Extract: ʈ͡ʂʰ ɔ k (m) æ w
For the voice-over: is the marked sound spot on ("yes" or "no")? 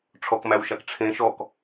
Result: yes